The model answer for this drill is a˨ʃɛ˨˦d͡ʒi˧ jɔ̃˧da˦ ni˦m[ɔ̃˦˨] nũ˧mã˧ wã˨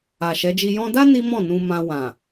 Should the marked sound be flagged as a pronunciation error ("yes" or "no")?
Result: no